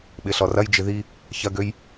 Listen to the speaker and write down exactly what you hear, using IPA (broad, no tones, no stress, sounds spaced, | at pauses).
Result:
ɓ ɪ ɬ ɔ r ɐ j d͡ʒ ɪ ð i | ç ɐ ɡ ø j